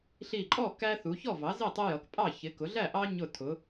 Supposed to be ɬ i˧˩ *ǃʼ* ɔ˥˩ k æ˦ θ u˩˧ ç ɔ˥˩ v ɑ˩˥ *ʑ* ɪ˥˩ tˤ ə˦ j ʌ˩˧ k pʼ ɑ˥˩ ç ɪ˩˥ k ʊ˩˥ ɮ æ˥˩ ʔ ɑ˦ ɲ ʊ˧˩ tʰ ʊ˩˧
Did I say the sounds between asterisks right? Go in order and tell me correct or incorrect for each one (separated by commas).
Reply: correct, incorrect